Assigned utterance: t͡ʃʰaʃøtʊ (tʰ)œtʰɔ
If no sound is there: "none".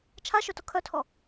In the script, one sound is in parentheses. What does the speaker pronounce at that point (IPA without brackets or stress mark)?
kʰ